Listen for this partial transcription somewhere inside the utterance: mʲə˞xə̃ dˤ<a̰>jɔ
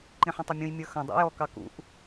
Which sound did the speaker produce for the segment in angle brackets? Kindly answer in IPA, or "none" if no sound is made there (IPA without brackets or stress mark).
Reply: æ̰